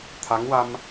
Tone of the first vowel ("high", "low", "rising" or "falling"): rising